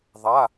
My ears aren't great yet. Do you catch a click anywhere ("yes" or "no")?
no